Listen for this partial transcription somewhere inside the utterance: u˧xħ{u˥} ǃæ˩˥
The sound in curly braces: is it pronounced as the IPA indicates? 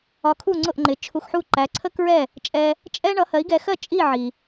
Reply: no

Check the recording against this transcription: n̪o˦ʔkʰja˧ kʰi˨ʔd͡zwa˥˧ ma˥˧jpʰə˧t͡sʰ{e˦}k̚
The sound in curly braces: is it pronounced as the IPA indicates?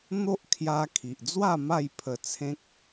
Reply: no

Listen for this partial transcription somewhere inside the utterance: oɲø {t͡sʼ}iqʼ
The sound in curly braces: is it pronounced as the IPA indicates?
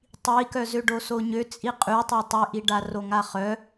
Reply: yes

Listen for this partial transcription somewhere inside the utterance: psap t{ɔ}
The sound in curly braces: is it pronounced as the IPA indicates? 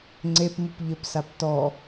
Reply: yes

